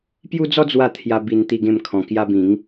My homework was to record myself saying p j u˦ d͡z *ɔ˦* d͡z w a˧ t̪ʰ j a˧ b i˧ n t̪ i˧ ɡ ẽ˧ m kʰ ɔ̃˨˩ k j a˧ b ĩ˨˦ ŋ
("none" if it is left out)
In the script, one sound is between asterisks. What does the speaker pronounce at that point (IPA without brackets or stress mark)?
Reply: ɔ˦